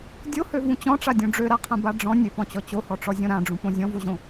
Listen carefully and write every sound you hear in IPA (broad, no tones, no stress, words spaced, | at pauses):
dʲohøvũ t͡ɕɔ̃ʈ͡ʂadʲõ ɖ͡ʐøɾaqʰãba ɖ͡ʐɔ̃ nʲøpɔ̃t͡ɕɔ t͡ɕohɔʈ͡ʂɔzʲɔ̃ ɾãɖ͡ʐũpõ zʲɔ̃voʑõ